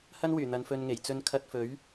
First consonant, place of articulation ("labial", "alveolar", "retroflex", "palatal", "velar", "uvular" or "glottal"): glottal